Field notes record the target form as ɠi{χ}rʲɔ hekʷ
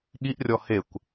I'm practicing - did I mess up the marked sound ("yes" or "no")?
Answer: yes